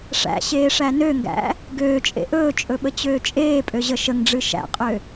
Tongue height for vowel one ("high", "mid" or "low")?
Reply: low